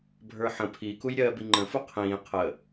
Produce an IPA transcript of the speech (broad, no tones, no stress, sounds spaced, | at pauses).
bʱ ə˞ ħ ə̃ pʰ i k u j ɾʲ ɜː b i ŋ͡ǃ ə̃ f u qʰ ĩː qʰ ə